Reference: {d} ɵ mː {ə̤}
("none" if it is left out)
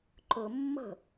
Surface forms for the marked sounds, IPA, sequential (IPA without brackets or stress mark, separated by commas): ǃ, ə̤